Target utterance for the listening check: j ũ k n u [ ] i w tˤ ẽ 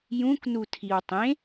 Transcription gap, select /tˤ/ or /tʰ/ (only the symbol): tʰ